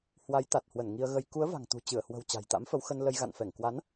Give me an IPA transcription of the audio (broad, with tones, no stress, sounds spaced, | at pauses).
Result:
h w a˨˦ j t̪ a˨˩ t̚ h w ə˧˩ n ŋ i˧ ə̯ ɣ ə˧ j k u˨˦ ə̯ v a̤˨˩ ŋ t̪ ṳ˨˩ t͡ɕ ɨ˧˩ ə̯ h w ə̤˨˩ w t͡ɕ a̤˨˩ j t̪ a̰˧˥ m f ə˨˦ w x ə˧ n l ə˧ j ɣ a̰˧˨ n f ɛ˧˩ ŋ k w a˨˦ n